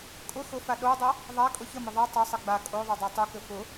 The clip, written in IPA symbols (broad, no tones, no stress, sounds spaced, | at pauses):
kʼ ʊ x ʊ f a ɗ o dˤ ʌ | ðˤ a kʼ ʊ ç ə m ə ðˤ ʌ tˤ ɘ sˤ ə ɡ͡b a kʼ o ðˤ o dˤ a tˤ u k ɘ f ʊ